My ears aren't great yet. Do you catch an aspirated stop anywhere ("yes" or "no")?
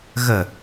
no